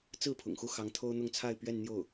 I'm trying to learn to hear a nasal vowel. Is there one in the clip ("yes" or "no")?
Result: no